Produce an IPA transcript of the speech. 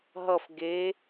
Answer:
ɦ ʌ f ɡ e

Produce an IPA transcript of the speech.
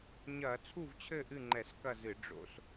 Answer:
ɲ ɐː˧˩˧ t͡sʰ u˥˨ v t͡ɕʰ ɘ˥˨ ʔ ɨ˥˨ ŋ͡ǃ ɛ˧˩˧ s k ɐ˥˨ z ɨ˧˩˧ ɖ͡ʐ o̰˧˩˧ s

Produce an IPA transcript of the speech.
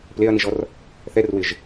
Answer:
p l e ɐ̯ n i ʒ ɔ r | θ ɛ r w ɪ ʒ

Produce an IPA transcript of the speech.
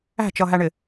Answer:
æ̤ t͡ʃ ʌ ɦ æ ɳ ɪ

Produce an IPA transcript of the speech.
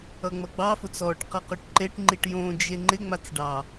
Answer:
ʌ ŋ͡m ʌ ɡ͡b ɑ f ʊ t͡s ɔ ʈ q ʌ q o ʈ ǃ e ʈ ŋ͡ǃ i ʈ j õ d͡ʒ e ŋ͡ǃ ɪ ŋ͡m a t͡s ɖ ɑ

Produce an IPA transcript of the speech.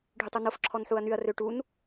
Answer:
ɖʱ y tˤ u n o f ǁʰ ɔ n ħ u ɐ̯ n y ɐ̯ r ø ʈ u n

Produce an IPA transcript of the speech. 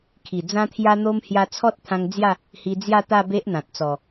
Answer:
kʰ i˨˩ d͡z ã˦ t̪ʰ j a˦ n̪ o˦ m h j a˧ t͡sʰ ɔ˦ t̚ t̪ʰ ã˧ ŋ d͡z j a˥˧ | h i˧ d͡z j a˥˧ t̪ a˥˧ b e˦ ʔ n̪ ã˨ t̚ t͡s ɔ˨˩

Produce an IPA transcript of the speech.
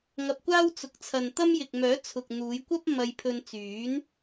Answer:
ŋ ɐ˧ p̚ kʷ aː˥ w t͡s ʊ˨ k̚ t͡sʰ ɐ˨ n t̪ ɐ˥ m j ɪ˨ k̚ m œː˨˥ t͡sʰ ʊ˨ k̚ n̪ uː˨˧ j kʷ ɐ˥ p̚ m ɐ˧ j pʰ ɵ˧ n t͡s yː˨˥ n

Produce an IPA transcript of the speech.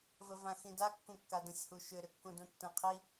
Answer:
v ə v ã x ĩ d a kː ũ kː a d ə̃ sʲ h u ʃ ʏ ɾ ʏ kː ũ d ũ tː ə̃ qʰ i

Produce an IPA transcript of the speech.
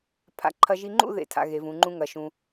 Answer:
pʰ a̰˧˩ ǃʰ ɐ˧ ʒ i˧ ŋ͡ǃ ṵ˥˧ ð ḛ˧˩ tʰ a̰˧ ɣ e˩˧ v ũ˩˧ ŋ͡ǃ ũ˧ ŋ ɐ˩˧ ʃ ũ˧

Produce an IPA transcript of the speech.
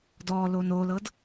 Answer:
d ɔ l o n o l ɤ d

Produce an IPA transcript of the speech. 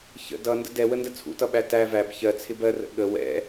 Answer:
ç ə̰ d ʌ n d ə̰ d ɛ w ə n d ə t͡sʰ ṵ t ʌ ɓ æ t æ v æ b ç ɜ t͡sʰ ɪ b ɜ r ə̰ ɠ ə w ɛ̰

